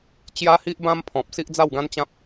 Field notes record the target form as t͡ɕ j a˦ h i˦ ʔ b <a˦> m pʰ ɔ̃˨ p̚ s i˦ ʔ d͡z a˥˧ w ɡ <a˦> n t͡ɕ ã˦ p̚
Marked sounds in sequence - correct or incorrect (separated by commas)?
incorrect, incorrect